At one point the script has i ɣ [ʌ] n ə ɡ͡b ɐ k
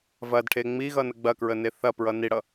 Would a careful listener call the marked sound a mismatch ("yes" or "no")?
no